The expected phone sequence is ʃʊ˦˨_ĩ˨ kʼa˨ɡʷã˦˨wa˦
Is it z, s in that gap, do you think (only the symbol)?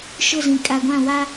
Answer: z